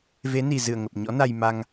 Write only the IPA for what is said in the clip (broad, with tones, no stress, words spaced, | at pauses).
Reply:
ve˨˦ni˨˩zɨ˧˩ə̯ ŋə˨˩p̚ɲɔ̰˧˥na˧j ma˧ŋ